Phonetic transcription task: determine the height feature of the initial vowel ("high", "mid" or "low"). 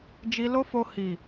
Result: high